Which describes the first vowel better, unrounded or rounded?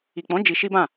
unrounded